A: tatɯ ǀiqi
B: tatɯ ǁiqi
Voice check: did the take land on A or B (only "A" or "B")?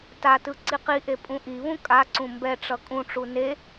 A